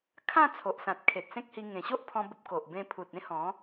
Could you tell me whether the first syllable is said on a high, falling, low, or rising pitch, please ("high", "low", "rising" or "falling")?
falling